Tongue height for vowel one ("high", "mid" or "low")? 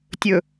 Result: mid